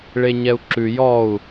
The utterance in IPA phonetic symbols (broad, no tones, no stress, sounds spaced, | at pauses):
ɭ e ɲ ɛ u̯ ǁ ʉ j ɔ u̯